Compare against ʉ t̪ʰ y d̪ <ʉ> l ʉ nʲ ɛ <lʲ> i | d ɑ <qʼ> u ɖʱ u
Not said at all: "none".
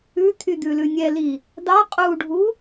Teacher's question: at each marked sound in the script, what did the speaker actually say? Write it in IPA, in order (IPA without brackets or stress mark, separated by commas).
ʉ, l, qʼ